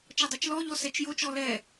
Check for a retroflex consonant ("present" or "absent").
absent